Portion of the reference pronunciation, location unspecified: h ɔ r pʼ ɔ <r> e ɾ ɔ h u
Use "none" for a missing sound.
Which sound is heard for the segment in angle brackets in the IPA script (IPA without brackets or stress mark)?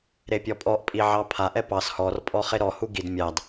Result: χ